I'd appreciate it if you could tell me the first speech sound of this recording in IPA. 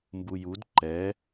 m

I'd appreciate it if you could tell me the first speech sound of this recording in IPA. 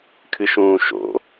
kʰ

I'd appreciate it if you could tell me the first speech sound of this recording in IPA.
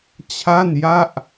t͡ɕʰ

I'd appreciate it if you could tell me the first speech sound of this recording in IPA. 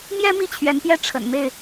m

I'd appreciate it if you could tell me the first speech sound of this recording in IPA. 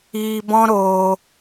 iː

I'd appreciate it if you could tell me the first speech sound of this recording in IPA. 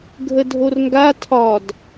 ɡʱ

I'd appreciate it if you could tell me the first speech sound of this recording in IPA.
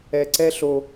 ɛ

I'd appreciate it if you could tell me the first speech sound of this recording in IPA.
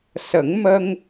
s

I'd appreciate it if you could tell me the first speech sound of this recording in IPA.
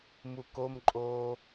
m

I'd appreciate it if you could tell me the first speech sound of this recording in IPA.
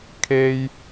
kʰ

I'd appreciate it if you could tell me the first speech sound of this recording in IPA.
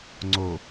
ŋ͡ǀ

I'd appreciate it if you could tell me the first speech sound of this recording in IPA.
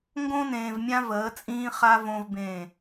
ŋ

